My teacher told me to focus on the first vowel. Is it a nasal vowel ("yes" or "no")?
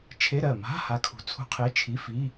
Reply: no